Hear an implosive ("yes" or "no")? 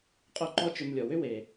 no